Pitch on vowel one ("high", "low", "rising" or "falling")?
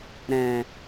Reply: low